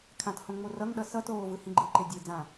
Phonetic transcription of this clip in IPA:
kʰ ã t h õ ŋ͡m o r ʌ ŋ ɗ ʌ s ʌ t oː v ɯ h ĩ ɡ͡ǃ ɯ ǃ e dʲ e d͡z ã

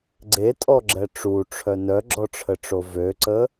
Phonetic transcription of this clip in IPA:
ɡ͡ǀ e tʼ ɔ ɡ͡ǁ ɛ ʈ͡ʂ u ʈ͡ʂʰ œ n œ ɡ͡ǁ ɔ ʈ͡ʂʰ ə ʈ͡ʂ o v ø ǀ ə

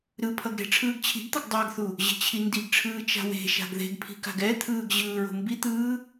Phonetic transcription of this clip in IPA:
ɾ ɯ pʰ ʌ ɡ ɾ e̤ ʈ͡ʂʰ ɯː ɡ t͡ɕʰ i̤ ɡ t̪ ʌ ɡ dˤ a ɡ θ u | ʑ e̤ t͡ɕʰ i n d i ɡ ʈ͡ʂʰ ɯː t͡ʃ a̤ w e̤ ʃ a̤ ɡ ð e̤ ɡ pʰ i̤ k a̤ ɡ ɛ t̪ʰ ɯː ɡ ʑ ɯː ɹ o̤ m b i t̪ ɯː

